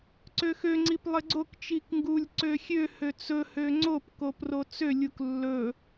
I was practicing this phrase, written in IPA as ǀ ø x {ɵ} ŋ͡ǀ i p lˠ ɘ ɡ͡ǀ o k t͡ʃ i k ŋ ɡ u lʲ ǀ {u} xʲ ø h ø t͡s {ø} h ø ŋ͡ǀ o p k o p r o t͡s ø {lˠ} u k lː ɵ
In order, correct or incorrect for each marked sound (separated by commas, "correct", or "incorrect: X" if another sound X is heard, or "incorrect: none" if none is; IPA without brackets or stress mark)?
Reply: incorrect: ø, incorrect: ø, incorrect: ɵ, incorrect: lʲ